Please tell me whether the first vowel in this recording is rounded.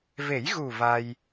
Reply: no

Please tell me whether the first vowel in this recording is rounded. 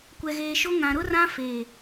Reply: no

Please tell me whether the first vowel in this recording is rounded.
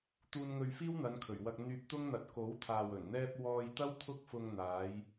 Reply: yes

